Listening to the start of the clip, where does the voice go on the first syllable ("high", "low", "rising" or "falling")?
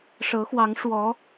rising